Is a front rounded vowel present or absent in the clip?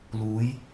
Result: absent